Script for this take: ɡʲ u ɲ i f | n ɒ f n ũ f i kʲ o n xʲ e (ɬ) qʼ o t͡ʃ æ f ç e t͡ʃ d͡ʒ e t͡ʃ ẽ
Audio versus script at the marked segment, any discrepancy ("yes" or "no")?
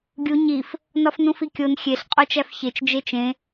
no